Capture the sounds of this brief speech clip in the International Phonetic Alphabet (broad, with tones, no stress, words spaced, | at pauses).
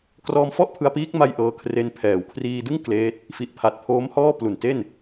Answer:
krɔː˧mfɔ˥˩ʔ pʰɯ˧a̯piː˦˥k̚ ma˥˩j ʔɤː˧ kʰre˧npʰɛː˩˦w kʰriː˧dɯ˥˩ŋ kleː˦˥t̚ | fi˨˩ʔpʰa˨˩t̚pʰoː˦˥mhɔː˥˩ plu˨˩nte˥˩n